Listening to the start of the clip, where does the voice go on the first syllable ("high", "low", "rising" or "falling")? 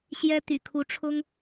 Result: high